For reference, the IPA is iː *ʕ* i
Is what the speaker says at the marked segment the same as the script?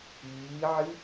yes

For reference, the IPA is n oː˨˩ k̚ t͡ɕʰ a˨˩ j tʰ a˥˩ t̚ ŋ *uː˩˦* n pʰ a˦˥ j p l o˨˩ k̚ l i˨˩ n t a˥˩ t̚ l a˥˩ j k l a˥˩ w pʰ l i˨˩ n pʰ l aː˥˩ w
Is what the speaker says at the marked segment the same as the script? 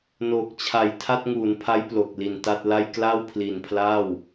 yes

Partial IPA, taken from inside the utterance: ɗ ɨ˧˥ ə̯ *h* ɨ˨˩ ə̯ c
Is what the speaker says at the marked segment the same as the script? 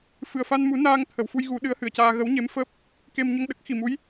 yes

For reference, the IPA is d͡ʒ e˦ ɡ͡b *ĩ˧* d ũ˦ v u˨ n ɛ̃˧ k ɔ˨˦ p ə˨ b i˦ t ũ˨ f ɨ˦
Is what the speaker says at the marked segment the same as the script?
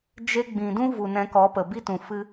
no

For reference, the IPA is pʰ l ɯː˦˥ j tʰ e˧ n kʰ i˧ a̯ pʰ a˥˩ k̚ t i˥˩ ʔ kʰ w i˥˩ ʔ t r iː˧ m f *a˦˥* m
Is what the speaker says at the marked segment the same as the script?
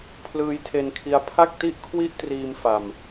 no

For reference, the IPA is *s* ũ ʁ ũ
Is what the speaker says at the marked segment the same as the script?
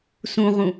yes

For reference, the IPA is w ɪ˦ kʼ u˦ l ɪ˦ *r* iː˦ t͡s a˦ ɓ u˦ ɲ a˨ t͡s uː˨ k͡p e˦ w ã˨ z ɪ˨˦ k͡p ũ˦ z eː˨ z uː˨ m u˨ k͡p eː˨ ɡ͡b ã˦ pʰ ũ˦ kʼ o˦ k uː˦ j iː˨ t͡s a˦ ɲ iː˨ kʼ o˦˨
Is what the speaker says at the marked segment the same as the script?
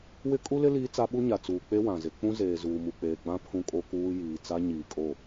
no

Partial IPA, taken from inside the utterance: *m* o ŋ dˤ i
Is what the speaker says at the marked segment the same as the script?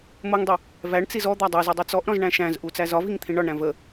yes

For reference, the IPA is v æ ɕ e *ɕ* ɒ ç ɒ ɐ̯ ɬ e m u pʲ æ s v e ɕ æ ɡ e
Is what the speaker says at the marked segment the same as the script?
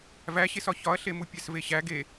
no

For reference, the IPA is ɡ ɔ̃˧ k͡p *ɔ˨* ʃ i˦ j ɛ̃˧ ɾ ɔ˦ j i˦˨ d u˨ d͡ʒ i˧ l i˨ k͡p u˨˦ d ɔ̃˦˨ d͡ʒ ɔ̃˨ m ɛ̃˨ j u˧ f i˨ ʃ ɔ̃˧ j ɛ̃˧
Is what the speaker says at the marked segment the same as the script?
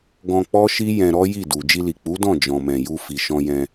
no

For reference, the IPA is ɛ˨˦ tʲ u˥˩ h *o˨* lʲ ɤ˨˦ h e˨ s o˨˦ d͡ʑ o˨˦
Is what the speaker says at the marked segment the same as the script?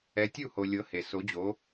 yes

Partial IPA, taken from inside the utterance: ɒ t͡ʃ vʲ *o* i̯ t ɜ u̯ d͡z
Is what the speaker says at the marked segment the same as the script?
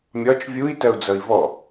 no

